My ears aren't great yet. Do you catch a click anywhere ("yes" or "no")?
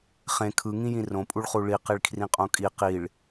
no